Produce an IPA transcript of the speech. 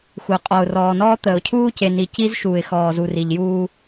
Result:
xʷ ə˨ ʊ̯ qʼ ɔ˨ ʊ̯ r ɔː˨ n ɔː˦ t̪ əː˨ ʊ̯ cʰ uː˦ c e˨ n i˨ c i˦ z ʃ uː˨ ɪ̯ x ɔː˨ z u˨ r i˨ ʎ j uː˦

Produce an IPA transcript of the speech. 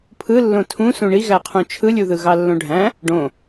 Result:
pʰ ɯ lː õ tʰ ũ s ũ ɳ i ɣ æ qʰ ũ t͡ʃʰ ɯ lʲ u ð ɯ ɣ ɑ lː õ ɖʱ æ̃ | ɖ õ

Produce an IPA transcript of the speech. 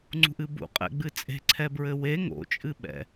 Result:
ŋ͡ǀ ṳ ʔ ɨ b ṵ qʼ ɛ̰ ɡ͡b ɨ t͡sʼ e̤ ǀʰ ɛ b ɹ ɘ w e ŋ o̰ t͡ʃʼ ɨ ɓ ɛ̰

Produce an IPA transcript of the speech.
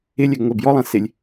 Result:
ɪ lʲ ɛ ɡ ŋʷ ɛ b j ɔ lˠ ã s ɪ lʲ

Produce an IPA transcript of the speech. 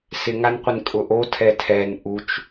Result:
s ɪ ŋ a n qʷ ɪ n kʼ ʊ ʔ o tʰ ɛ tʰ ɛ n ʔ u t͡ʃ

